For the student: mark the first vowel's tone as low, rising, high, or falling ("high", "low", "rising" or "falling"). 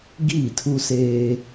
falling